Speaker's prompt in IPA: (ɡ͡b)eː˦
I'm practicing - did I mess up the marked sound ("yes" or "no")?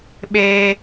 yes